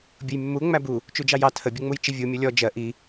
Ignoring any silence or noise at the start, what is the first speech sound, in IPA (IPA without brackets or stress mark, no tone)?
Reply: bʲ